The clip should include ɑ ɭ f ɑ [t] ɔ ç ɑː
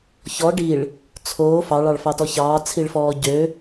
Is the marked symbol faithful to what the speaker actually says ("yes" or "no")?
yes